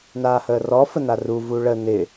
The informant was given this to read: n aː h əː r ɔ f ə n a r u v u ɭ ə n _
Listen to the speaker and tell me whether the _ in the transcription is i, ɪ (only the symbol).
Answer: ɪ